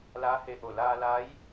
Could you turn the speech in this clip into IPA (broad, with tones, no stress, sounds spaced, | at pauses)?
l aː˧˥ h e˧ ʔ o˧˩ l aː˧ l a˧˥ j